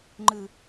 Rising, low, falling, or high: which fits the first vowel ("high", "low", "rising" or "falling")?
low